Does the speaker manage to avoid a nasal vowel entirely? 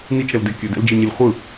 yes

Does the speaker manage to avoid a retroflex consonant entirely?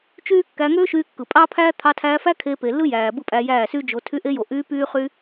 yes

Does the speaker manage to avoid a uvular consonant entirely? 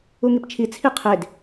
no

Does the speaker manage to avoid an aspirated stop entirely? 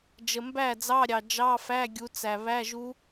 yes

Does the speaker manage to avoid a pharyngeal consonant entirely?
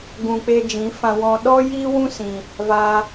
yes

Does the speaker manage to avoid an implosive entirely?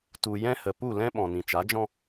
no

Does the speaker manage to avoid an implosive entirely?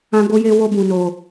yes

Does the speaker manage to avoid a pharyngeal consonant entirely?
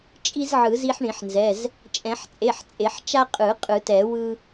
no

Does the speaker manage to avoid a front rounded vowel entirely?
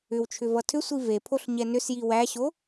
no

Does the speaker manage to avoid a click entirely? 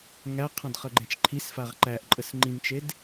no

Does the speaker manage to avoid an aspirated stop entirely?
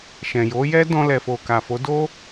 yes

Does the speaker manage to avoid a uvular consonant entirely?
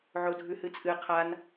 no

